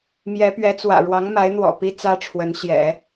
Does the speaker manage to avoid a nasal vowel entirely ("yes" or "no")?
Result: yes